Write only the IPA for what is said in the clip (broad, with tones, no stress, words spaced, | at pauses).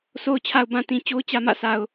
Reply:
sʰo˨ʊ̯t͡ɕʰa˨ʊ̯bã˨ tĩ˨ t͡ɕo˦ʊ̯ t͡ɕä˨mä̰˦˨sʰa˨ʊ̯